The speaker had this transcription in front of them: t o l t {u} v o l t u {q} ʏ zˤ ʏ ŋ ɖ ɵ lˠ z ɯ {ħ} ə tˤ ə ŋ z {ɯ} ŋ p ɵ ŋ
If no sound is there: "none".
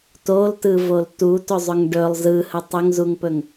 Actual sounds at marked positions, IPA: ɯ, t, h, u

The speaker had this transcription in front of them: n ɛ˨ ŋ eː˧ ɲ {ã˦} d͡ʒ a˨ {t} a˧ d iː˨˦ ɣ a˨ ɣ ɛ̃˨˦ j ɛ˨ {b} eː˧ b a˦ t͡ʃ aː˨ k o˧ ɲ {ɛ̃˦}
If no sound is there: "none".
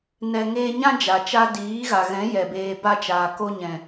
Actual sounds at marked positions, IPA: ã˦, t͡ʃ, b, ɛ̃˨

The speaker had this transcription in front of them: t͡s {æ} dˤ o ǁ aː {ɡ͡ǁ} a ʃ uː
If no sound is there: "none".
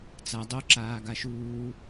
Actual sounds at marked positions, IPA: a, ɡ

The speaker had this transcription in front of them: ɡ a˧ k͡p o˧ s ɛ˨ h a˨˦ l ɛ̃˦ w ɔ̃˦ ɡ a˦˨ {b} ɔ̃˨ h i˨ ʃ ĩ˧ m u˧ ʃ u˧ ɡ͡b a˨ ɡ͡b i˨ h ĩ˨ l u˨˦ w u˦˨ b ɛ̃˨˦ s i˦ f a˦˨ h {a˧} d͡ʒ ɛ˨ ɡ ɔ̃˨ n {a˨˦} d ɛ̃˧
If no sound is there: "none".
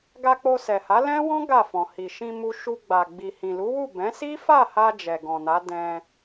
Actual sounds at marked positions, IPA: f, a˧, a˨˦

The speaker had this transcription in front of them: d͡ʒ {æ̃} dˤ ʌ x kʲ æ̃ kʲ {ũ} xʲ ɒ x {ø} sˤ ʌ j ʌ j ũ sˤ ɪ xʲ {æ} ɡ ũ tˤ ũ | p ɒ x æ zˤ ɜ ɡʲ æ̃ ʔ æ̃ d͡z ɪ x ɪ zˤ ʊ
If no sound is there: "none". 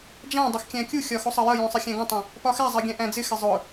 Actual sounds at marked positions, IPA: æ̃, u, u, æ̃

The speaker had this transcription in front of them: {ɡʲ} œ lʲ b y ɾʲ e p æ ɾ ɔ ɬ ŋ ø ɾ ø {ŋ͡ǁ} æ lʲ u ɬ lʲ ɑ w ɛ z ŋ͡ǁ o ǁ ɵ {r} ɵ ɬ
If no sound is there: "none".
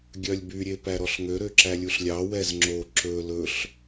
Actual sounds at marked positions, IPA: ɡʲ, ǁ, l

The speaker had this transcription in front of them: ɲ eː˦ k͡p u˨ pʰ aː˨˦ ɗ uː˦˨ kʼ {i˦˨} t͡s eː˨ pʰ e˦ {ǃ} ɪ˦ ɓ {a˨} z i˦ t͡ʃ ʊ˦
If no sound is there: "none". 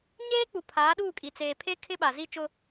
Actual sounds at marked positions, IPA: i˨, kʰ, a˨

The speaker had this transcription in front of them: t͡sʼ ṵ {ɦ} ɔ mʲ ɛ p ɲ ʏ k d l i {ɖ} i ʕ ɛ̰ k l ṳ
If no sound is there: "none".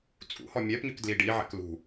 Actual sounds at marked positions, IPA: h, ɖ

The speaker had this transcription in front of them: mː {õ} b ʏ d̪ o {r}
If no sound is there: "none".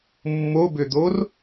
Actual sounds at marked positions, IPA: o, r

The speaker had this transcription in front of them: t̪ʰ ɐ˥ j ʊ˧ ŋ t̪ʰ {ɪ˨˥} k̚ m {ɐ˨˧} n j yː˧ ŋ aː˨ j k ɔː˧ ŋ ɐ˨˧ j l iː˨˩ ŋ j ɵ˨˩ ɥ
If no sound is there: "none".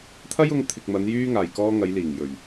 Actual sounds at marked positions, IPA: ɪ˨, ɐ˨˧

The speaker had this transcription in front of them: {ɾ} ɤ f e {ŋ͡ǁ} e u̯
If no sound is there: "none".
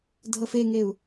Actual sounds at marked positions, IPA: dʱ, ŋ

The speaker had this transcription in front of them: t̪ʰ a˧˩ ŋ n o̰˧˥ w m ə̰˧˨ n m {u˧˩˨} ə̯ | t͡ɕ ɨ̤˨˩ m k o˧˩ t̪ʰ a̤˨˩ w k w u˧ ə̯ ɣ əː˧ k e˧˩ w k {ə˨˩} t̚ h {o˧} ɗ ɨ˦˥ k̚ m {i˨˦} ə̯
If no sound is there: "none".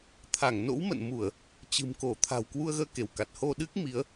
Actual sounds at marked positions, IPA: u˧˩˨, a˨˩, o˧, i˨˦

